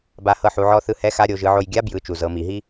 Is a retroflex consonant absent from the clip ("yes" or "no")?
yes